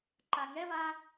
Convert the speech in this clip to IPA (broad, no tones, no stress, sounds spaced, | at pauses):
ǃ a ŋ ɛ v a